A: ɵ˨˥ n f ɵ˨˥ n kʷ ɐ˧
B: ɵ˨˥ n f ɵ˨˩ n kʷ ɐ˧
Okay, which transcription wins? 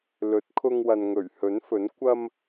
A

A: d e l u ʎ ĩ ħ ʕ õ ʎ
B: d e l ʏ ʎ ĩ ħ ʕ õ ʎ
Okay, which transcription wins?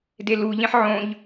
A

